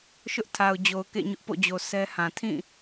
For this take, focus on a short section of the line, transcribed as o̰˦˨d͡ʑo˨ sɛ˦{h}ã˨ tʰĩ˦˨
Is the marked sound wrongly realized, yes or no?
no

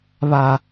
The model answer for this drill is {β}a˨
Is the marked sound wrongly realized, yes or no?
no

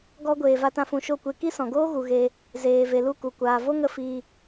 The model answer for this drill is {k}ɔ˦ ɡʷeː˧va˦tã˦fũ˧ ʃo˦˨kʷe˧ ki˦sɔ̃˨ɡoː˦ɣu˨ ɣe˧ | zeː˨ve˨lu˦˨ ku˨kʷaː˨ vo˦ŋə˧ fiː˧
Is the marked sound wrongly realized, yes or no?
yes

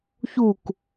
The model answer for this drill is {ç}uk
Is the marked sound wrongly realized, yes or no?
no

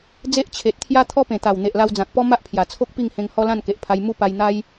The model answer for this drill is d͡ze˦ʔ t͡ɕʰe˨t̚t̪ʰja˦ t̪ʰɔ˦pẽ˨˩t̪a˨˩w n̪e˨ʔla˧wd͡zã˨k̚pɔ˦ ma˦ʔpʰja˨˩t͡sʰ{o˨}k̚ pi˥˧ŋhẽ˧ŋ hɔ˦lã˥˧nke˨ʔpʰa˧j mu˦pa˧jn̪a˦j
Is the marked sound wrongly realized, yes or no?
yes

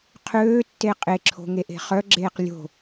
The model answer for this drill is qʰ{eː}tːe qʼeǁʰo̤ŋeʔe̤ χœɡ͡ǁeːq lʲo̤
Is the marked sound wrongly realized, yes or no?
yes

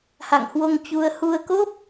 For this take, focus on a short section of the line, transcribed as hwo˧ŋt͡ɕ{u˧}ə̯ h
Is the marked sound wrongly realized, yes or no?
no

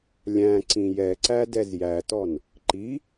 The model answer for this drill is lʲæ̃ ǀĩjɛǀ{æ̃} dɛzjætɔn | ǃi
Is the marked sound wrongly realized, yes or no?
yes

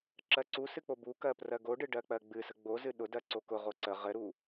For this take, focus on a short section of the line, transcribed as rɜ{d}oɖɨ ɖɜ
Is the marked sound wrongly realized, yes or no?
yes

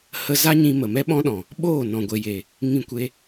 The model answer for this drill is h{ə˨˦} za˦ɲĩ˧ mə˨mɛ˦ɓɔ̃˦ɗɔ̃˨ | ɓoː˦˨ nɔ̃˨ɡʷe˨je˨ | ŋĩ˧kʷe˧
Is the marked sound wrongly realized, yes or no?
yes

